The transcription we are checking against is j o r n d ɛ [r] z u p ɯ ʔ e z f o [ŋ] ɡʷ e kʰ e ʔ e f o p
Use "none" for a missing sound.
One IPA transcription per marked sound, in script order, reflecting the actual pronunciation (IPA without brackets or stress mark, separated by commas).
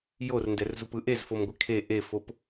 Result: r, m